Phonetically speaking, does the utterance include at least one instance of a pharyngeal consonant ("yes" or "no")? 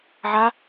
yes